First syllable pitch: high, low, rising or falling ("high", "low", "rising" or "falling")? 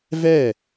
falling